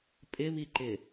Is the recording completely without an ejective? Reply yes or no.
no